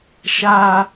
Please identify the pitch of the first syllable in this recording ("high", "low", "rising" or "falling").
high